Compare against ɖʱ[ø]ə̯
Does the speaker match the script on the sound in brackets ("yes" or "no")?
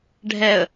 no